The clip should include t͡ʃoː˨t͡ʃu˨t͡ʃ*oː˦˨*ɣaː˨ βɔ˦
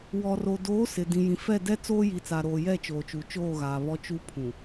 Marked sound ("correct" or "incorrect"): correct